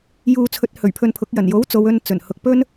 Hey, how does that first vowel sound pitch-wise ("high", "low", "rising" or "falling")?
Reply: low